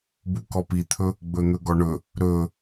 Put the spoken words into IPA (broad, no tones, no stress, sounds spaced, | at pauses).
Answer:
b u k ɔ p i t̪ʰ ɵ | ɡ͡b ɵ n̪ ɵ ɡ ɔ ɳ ɵ | ɾ ɵ